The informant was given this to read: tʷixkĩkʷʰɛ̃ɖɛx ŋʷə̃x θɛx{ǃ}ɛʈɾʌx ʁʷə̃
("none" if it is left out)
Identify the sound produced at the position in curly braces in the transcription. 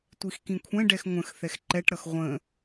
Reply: ǃ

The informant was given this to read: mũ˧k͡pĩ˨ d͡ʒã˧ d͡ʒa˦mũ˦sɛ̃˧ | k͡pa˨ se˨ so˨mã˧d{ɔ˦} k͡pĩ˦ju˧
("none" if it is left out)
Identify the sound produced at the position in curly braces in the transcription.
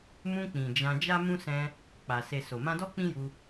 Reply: ɔ˦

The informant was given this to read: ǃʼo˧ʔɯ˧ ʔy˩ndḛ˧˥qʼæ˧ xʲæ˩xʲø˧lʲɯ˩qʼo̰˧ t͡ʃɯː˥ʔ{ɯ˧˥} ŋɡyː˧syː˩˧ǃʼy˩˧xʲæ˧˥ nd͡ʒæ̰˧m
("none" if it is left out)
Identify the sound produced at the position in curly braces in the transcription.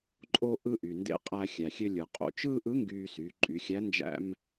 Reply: ɯ˧˥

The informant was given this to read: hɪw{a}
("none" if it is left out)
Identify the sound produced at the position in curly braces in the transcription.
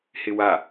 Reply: a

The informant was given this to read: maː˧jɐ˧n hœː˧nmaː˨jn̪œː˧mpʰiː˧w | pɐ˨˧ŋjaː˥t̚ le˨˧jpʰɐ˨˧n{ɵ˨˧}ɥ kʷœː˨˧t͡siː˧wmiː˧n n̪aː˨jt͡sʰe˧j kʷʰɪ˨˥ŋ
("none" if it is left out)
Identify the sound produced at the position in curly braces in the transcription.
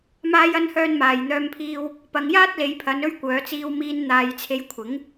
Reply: ɵ˧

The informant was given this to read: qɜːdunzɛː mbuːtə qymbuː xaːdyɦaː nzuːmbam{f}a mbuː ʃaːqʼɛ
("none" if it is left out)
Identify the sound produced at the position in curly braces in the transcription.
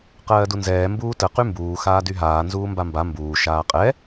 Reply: b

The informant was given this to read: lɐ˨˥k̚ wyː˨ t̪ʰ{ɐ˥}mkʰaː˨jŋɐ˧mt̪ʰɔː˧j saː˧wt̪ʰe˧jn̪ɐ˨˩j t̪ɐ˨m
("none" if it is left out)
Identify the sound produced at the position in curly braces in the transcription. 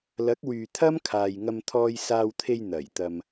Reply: ɐ˥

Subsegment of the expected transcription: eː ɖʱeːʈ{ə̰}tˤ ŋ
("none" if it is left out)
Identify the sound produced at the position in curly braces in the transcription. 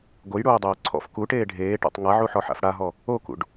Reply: a̰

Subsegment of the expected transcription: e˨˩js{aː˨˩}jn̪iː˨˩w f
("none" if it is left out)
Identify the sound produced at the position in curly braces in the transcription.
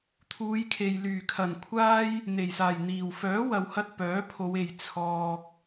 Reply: aː˨˩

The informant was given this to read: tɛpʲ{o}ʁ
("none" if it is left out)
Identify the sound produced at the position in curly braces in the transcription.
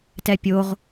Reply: o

